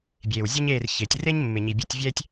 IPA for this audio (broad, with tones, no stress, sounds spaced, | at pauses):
bʲ eː˨ w zʲ ʊ˦ ɲ eː˦˨ r ç ɪː˨ tʲ r e˦ ɲ mː ɪ˨ ɲ i˨ bʲ ʊ˧ tʲ vʲ ɛ˦ tʲ